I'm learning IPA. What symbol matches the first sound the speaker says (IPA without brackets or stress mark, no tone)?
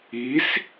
i